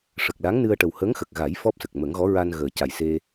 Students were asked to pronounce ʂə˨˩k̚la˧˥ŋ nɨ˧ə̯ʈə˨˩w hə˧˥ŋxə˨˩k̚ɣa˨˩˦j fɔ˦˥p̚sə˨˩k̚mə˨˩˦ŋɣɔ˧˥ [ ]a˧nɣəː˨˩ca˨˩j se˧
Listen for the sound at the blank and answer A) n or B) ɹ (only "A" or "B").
B